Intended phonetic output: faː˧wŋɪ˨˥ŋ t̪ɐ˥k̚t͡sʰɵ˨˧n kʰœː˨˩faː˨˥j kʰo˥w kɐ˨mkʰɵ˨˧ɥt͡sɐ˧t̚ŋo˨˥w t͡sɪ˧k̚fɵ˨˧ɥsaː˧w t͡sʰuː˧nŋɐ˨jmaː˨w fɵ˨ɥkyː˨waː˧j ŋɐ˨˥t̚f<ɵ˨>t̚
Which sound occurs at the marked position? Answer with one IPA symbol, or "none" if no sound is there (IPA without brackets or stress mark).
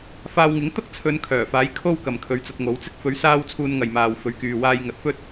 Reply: ɵ˥